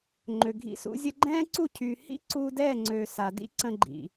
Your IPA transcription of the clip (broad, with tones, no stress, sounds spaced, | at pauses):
ŋ͡ǃ ø˨ ɡʱ ḭ˧ s ṵ˧ zʲ ə˧ ɡ͡ǃ ɛ̃ː˦ ǀ u˦˨ cʰ y˨ h ḭ˦ ǀ u˧ d ɛ˦˨ ŋ͡ǀ ø˨ s a˨ d ḭ˦ ǀ ə̃˧ ɡ͡ǃ ḭ˨